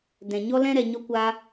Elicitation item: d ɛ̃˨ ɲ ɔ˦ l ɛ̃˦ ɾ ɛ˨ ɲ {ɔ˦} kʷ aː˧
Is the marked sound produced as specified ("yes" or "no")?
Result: yes